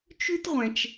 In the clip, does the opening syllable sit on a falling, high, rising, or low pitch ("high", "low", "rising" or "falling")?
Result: high